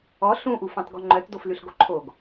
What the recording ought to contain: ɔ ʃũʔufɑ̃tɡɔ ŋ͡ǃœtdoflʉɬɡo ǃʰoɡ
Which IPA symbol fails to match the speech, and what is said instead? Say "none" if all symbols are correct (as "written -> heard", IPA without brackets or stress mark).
ʃ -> ɬ